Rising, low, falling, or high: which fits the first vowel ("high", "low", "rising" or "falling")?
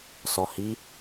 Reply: low